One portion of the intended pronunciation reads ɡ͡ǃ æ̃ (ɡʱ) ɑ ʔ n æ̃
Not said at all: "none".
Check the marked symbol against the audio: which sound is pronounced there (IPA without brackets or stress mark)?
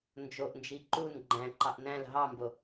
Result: ǃ